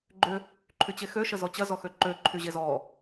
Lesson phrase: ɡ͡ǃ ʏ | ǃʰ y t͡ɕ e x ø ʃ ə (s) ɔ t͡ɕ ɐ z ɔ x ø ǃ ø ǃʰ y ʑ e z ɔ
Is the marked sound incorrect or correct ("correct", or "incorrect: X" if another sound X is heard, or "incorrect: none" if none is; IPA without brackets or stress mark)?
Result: incorrect: z